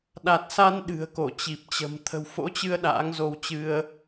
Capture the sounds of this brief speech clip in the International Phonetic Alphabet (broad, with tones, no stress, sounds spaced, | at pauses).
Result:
ɗ a˨˩ t̚ s a˧ n ɗ ɨ̤˨˩ ə̯ k o˧˩ t͡ɕ i˨˩ p̚ t͡ɕ ə̤˨˩ m t̪ʰ ə̤˨˩ w f o̰˧˥ t͡ɕ ɨ˧ ə̯ ɗ a̰ː˧˥ ŋ z o˧ w t͡ɕ ɨ˧ ə̯